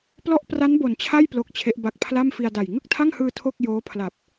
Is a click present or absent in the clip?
absent